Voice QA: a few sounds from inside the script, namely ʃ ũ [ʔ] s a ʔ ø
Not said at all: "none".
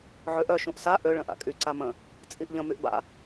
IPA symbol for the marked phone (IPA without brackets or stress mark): ʔ